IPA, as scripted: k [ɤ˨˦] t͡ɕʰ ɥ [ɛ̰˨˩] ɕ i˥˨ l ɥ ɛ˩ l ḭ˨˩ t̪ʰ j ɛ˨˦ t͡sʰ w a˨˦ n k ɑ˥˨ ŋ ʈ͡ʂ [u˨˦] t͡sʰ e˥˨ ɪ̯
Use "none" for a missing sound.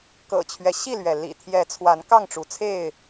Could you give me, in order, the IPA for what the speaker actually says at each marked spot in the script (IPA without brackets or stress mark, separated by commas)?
ɤ̰˨˩, ɛ˦, u˨˦